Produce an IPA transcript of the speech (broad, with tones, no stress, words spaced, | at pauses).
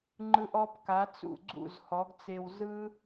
ŋ͡ǃɯ˧ʔɔ˧b ka˨˦t͡sṵ˦˨ɡ͡ǀṵ˦˨z hɔ˨˦ɡt͡se˧w zɯ˦